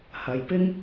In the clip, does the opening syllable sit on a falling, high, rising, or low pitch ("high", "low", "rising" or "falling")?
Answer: low